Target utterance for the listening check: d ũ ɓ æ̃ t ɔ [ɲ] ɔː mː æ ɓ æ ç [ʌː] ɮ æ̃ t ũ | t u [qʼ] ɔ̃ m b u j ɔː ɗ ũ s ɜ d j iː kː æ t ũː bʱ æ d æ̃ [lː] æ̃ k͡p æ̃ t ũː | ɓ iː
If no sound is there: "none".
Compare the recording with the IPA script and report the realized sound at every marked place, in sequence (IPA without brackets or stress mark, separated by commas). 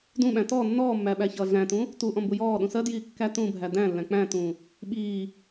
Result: nː, ʌː, ʔ, lː